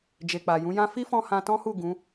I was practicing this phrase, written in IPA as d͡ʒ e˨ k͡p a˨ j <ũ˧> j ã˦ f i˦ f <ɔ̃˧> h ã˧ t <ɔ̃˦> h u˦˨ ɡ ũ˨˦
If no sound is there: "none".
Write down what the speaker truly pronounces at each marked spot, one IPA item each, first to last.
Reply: ũ˨˦, ɔ̃˧, ɔ̃˦

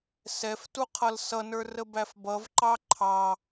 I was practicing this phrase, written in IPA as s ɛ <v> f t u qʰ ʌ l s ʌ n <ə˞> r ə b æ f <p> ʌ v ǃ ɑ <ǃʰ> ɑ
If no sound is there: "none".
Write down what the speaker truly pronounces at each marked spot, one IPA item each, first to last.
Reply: none, ə˞, b, ǃʰ

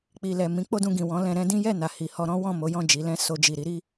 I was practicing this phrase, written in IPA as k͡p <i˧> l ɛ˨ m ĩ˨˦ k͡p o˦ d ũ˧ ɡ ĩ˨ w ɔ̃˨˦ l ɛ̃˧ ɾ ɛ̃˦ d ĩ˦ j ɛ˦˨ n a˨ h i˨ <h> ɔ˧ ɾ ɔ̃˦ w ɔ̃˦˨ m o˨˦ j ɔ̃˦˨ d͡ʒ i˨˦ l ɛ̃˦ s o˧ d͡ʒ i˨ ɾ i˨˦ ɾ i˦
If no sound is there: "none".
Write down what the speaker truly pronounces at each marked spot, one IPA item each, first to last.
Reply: i˨, h

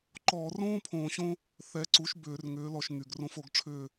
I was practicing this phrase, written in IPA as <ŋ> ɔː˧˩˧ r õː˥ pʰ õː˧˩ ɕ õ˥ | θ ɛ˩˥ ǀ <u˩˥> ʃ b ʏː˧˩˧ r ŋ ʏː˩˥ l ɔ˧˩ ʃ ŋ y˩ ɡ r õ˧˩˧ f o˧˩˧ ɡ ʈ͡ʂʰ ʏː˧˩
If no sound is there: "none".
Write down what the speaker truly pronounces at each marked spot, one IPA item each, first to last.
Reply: ǃ, u˩˥

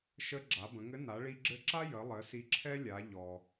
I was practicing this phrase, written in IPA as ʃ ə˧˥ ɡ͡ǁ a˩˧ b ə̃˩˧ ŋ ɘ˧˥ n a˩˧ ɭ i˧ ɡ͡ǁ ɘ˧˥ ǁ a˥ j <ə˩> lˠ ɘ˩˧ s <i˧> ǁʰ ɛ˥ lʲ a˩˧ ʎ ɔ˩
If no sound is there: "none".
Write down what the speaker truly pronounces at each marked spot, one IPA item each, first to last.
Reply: ə˩˧, i˧

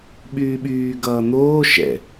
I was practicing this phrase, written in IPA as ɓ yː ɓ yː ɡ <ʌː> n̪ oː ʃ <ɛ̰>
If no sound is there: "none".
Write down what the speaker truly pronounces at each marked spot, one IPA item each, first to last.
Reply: ʌː, ɛ̰

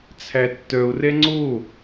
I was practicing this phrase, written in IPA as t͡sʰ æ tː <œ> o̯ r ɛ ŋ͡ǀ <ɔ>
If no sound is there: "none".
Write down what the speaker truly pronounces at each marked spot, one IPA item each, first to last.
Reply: œ, o

